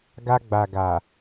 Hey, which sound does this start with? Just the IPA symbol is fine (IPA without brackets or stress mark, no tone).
ɡ